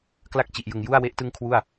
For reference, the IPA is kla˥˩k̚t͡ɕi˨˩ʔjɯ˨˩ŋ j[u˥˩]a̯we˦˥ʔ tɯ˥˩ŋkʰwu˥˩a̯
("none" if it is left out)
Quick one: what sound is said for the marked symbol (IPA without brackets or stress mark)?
u˥˩